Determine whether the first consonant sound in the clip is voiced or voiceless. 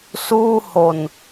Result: voiceless